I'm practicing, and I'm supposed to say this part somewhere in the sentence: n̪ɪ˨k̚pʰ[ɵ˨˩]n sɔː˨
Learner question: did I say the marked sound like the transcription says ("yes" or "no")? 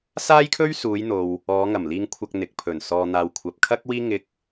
yes